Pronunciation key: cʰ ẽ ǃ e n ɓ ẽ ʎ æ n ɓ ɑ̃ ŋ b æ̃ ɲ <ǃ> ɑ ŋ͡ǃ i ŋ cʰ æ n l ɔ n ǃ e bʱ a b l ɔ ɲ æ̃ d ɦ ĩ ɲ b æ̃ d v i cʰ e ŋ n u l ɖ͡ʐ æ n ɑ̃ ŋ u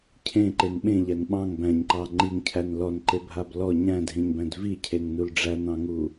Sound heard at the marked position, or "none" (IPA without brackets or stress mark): ǃ